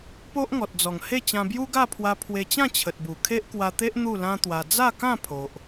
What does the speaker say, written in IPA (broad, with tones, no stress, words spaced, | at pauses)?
po˦ʔŋɔ˨t̚d͡zɔ˨˩ŋhe˥˧ t͡ɕã˧bju˦ɡa˥˧pʰwa˧ pʰwe˧t͡ɕã˥˧t͡ɕʰə˨t̚bu˨˩ kʰe˦ʔkwa˧t̪e˦ʔ n̪u˥˧lã˦t̪wa˧ d͡za˥˧kã˥˧ pʰo˨ʔ